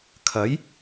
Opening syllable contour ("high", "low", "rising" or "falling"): rising